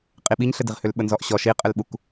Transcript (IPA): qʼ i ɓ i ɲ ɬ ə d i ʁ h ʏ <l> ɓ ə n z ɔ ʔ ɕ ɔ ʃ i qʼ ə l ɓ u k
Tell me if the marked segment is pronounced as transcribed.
yes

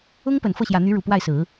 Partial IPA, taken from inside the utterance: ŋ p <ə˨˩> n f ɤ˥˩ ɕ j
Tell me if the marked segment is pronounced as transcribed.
yes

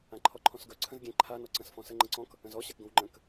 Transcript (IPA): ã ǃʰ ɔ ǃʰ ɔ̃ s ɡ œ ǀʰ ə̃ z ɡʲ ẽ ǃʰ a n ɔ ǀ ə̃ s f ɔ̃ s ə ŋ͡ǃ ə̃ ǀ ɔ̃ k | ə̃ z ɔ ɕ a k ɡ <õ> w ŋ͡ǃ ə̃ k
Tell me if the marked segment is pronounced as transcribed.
yes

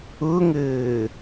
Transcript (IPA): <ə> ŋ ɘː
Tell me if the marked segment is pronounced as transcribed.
no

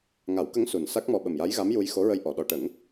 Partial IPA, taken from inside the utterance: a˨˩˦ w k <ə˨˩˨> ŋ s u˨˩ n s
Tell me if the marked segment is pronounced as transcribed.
no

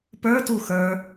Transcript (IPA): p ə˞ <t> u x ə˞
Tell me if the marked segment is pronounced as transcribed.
yes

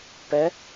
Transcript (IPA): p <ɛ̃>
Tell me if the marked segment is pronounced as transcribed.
no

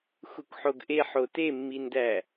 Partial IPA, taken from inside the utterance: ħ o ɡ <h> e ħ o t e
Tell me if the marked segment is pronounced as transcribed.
no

